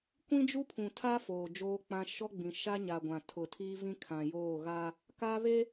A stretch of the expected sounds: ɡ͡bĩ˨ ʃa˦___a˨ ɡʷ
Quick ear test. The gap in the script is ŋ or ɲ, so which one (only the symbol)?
ɲ